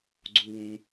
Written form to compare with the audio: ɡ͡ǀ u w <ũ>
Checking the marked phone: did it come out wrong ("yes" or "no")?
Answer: no